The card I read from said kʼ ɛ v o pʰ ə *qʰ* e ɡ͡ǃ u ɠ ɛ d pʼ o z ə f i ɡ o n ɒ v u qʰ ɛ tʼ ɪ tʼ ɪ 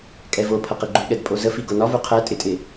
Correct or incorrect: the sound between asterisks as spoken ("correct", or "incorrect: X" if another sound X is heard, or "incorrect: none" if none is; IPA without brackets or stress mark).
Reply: incorrect: q